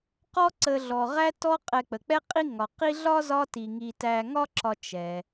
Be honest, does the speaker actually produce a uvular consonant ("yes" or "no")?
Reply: yes